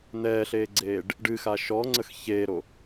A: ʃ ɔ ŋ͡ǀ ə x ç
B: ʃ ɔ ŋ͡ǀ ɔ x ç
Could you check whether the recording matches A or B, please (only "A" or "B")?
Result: A